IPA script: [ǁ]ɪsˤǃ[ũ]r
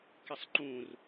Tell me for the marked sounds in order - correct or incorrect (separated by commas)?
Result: incorrect, correct